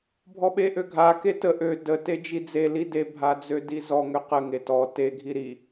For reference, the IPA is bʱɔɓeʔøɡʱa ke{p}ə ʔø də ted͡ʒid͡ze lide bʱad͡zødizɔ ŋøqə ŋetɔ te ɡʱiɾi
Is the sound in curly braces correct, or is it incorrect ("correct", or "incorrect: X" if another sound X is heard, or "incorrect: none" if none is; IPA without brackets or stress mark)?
incorrect: t